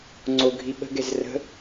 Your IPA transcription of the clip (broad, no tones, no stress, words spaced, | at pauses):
ŋ͡ǀoɡʱi ɓə̤ɡɛz rə̤